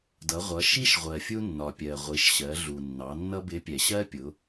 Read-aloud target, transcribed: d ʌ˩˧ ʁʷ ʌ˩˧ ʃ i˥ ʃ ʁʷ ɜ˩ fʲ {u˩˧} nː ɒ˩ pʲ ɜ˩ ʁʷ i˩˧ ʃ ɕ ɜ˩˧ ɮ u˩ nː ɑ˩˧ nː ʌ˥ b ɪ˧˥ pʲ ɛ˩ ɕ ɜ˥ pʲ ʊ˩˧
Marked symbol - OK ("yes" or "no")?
no